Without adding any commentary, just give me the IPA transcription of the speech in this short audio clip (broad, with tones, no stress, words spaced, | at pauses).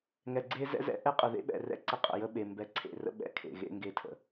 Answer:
ŋɛ˨ɡ͡ǀe˦ zɛ̰˦zɛ̰˦ ʔɛ˦qʼə˨ðḛ˦ ɓɛ̰˨rɛ̰˦˨ ǀə˦qʼə̰˨jə˦ ɓe˨ mbɛ˨ǀʰḛ˨rə̰˦ ɓɛ̰˦˨ kʰḛ˨ɣḛ˦ŋɡe˦tʰə̰˨